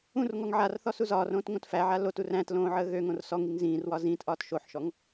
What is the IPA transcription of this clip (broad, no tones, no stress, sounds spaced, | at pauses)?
ũ r ŋ ɔ ŋ ʕ a r θ ɔ s u z ɒː r õː t ŋ õ t f æ ʕ a l o t u r æ̃ t l õː ʕ əː ɣ ø ŋ õ r s ɔ ŋ i ŋ z ĩː r w ɒ z ĩː t ʔ ɒː t ʃ o ħ ʃ ɔ ŋ